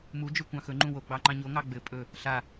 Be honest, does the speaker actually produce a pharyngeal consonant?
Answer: no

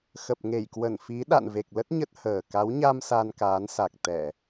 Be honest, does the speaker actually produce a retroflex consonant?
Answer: no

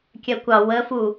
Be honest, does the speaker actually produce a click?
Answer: no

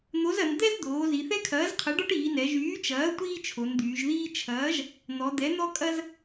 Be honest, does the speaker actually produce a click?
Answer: no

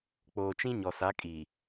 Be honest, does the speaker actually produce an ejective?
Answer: yes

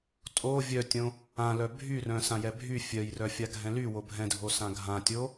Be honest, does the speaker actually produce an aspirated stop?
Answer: no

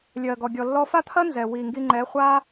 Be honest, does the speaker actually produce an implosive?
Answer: no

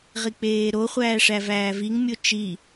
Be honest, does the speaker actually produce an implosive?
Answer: no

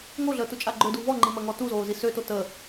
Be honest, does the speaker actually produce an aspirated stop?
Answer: no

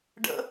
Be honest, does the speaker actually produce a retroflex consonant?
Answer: yes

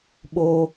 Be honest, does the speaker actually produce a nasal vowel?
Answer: no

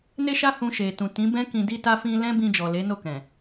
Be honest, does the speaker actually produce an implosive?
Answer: no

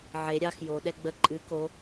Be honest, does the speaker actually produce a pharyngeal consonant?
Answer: yes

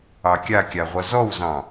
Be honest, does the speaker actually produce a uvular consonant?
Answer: yes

